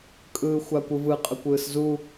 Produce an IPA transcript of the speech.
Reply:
kʼ ɯː xʷ a kʷ ɯ v ɯ qʼ ə kʷ ɯː s z u

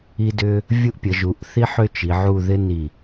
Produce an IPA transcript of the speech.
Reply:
i˥ d ʏ˥ | vʲ u˥ ʔ pʲ ə˩˧ ʒ u˩˧ ʔ θ i˥ ħ ʏ˥˧ t͡ʃ i˩˧ ʕ u˥˧ ð ɪ˥ n i˧˩

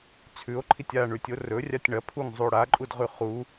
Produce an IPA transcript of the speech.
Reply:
t͡sʰ ʉ o̯ ǃʰ i tʲ a ɳ ʉ tʲ o r ɵ rʲ a tʲ ɳ ɐ pʰ u ŋ zˤ u o̯ ɽ a ǃʼ u d ʁ ʉ χ u

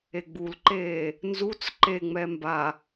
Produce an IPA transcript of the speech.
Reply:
e ɡ͡b u l ǃ eː | n z u t͡s ǃ e ŋ͡m ɛ m b a

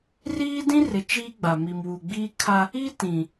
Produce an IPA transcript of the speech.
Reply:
r iː˦ d ĩ˦ r ɪ˨ t͡ʃ iː˦ ɡ͡b a˨ m i˨ m w u˨ ɡ͡b iː˦ kʰ a˦ | i˦ t ĩ˨

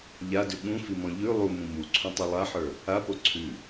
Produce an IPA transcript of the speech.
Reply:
ʎ a d ʉ ɠ ũ f i m ɔ̃ ʎ ʉ lˠ u m ũ m u ǀʰ ũ tˤ u lˠ a ħ ə˞ | a p o ǀʰ ʉ

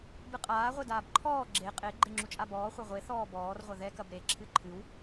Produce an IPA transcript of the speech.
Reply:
b ɨ qʼ aː ʁʷ e d aː b ǃʰ ɔː ɡ͡ǁ e qʼ e ɡ͡ǃ e ŋ͡ǁ u t͡ʃʼ a b ɔː χʷ ɐ ʁʷ e θ ɔː b ɔː r ʁʷ ɐ ð ɛ k ɐ b ɾ e ǁʰ ɨ ǃʰ ɨ w

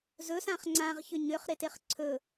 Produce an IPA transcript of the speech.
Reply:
z ɵ s ã χ ŋ͡ǀ ã ʁ ç ʏ ɲ ʏ χ ɾ e t e χ ǀʰ ɵ

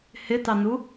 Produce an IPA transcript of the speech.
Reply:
h ɪ t ɑ n u

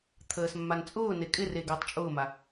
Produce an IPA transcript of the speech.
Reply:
t̪ʰ əː s mː a n t͡sʼ ʊː n e kʼ ɪ r e ɡ əː tˤ t͡ʃʼ ʊː m a

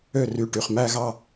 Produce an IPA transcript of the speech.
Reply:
ø˥˩ r y˧˩ ʈ y˧˩ χ m æ˥˧ ɣ ɑ˥˩

